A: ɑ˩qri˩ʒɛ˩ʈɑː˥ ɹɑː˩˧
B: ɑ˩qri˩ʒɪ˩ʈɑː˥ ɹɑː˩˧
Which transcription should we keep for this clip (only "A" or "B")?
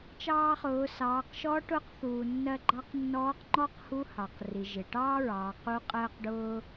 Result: B